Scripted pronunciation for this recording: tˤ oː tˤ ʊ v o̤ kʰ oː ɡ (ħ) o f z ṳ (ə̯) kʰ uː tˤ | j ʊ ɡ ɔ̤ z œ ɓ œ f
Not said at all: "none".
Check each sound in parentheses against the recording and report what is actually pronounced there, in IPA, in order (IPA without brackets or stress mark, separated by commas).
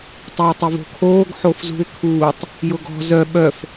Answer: ħ, ɪ̯